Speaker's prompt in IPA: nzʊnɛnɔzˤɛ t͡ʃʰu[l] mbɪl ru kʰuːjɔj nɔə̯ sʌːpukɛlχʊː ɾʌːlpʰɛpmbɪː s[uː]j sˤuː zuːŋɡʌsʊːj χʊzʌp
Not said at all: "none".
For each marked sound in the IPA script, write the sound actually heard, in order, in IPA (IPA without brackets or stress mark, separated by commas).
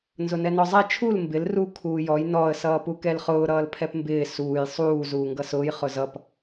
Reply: l, uː